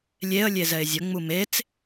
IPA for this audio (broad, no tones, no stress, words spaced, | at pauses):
lʲeə̯ lʲezɛɪ̯zʲə ŋ͡mumet͡s